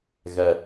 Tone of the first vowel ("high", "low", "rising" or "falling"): low